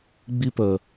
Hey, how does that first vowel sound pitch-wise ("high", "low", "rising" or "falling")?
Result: high